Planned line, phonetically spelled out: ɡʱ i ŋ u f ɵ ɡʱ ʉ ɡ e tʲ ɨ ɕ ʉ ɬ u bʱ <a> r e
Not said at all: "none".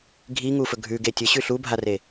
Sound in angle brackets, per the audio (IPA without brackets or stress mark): a